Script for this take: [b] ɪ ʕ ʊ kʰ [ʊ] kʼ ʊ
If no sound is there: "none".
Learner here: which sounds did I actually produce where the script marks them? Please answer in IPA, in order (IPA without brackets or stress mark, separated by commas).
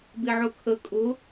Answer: b, ə